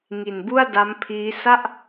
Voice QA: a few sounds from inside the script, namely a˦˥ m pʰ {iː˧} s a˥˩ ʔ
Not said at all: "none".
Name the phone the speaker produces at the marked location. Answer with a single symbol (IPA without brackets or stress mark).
iː˦˥